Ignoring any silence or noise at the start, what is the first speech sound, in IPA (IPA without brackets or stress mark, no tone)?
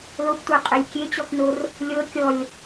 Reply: l